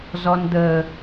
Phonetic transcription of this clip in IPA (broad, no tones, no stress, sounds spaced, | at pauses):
z ɔ n d̪ ə